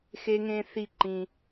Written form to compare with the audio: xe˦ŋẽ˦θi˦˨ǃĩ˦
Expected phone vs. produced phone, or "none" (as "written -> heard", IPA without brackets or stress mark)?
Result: none